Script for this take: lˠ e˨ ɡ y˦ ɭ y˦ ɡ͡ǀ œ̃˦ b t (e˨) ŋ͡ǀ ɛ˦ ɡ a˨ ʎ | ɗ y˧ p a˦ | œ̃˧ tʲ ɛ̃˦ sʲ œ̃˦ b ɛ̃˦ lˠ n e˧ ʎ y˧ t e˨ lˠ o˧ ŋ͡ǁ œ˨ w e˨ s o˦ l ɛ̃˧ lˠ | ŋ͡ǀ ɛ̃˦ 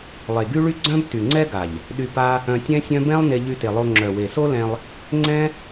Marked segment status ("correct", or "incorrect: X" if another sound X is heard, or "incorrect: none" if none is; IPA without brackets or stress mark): incorrect: y˨